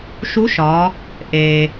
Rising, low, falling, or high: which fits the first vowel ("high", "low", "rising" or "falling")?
rising